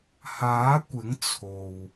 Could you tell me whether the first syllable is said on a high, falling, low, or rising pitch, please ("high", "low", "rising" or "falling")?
rising